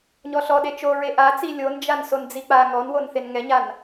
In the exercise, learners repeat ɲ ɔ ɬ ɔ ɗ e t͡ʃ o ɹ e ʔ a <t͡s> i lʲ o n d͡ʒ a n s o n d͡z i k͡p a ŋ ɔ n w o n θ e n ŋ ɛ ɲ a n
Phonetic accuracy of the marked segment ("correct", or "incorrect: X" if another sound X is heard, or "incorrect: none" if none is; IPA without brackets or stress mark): correct